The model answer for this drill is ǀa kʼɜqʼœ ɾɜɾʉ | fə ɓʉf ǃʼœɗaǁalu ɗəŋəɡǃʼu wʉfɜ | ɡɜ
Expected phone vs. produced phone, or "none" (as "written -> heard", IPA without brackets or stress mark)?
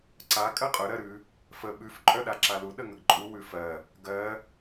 none